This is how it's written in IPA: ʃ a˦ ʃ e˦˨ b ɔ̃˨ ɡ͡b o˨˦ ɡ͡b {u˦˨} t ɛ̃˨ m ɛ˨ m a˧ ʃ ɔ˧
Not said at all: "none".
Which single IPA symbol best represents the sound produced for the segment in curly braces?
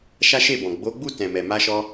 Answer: u˦˨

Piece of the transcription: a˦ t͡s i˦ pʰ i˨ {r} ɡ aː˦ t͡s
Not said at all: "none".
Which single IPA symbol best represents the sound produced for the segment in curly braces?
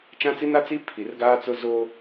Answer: r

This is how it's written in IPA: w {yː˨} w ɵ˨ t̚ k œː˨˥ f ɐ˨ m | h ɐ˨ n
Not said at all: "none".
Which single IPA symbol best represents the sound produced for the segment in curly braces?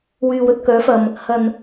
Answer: yː˨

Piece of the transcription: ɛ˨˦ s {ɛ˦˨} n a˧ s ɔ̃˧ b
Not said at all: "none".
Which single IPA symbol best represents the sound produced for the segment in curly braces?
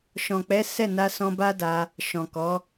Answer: ɛ˦˨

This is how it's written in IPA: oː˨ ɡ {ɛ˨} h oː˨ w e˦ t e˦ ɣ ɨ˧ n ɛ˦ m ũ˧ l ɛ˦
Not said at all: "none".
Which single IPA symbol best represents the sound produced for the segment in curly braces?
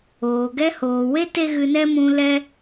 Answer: ɛ˦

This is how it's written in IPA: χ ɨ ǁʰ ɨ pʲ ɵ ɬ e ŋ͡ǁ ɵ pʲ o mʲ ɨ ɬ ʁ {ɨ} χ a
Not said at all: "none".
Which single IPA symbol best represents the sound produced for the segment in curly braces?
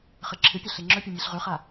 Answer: ʉ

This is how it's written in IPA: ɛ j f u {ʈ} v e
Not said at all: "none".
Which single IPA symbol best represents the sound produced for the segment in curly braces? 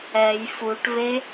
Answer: ʈ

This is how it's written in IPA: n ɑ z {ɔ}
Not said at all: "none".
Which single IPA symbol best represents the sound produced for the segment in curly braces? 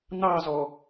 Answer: ɔ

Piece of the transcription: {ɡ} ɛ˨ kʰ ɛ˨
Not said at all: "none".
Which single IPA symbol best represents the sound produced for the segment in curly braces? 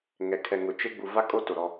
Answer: ŋ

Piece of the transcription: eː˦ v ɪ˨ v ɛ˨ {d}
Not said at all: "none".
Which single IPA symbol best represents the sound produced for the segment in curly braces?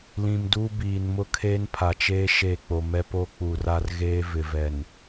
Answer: n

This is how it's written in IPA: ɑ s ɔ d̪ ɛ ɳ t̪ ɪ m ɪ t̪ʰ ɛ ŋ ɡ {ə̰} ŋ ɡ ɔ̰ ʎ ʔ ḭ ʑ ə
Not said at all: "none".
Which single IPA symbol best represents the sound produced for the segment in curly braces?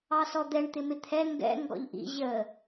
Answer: ɛ̰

